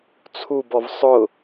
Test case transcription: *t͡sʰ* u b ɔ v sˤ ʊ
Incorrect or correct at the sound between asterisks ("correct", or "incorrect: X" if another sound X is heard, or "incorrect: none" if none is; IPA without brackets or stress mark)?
correct